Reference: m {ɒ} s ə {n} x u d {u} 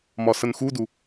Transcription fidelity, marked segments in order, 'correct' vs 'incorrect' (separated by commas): correct, correct, correct